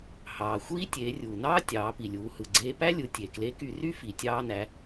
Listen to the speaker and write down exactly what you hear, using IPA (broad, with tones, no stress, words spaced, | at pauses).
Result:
hɑː˩ xʷiː˥ tʲeː˩˧rʲuː˩nɑː˥ tʲɑː˩˧pi˩lʲuː˩˧ hɯ˩ɡ͡ǀeː˧pæ˥lʲɯ˩˧ tʲe˩kle˧˥ky˧ ry˥ fi˩tʲɑː˧næ˩˧